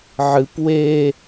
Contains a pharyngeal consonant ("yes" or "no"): yes